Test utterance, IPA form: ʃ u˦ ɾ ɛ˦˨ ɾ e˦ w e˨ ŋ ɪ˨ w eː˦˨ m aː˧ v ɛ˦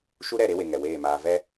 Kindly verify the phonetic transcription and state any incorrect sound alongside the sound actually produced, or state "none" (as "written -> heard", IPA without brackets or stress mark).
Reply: ɪ˨ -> ɛ˨